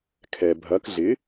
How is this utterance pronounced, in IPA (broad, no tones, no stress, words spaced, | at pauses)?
kʰɛ bʱɐk ɮɪ